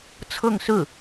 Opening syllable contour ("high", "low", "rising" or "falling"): falling